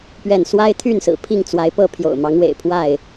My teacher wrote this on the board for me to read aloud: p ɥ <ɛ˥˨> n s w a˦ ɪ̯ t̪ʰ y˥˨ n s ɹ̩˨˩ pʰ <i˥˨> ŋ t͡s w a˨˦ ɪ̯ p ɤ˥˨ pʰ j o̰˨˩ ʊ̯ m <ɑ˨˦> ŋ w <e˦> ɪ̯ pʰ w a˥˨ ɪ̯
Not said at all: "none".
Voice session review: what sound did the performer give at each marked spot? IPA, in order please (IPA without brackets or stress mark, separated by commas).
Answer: ɛ˥˨, i˥˨, ɑ˨˦, ḛ˨˩